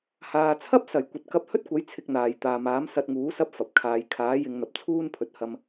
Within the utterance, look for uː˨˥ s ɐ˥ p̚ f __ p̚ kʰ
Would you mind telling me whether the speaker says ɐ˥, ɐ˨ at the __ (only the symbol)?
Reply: ɐ˨